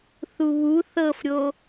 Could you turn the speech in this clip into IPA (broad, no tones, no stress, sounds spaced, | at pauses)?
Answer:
θ u β u θ ɤ f ɾʲ o